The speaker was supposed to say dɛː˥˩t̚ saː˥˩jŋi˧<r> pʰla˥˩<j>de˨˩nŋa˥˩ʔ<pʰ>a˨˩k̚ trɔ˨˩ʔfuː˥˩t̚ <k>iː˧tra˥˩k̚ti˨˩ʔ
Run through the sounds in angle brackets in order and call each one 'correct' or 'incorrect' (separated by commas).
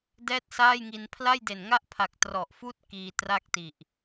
incorrect, correct, correct, correct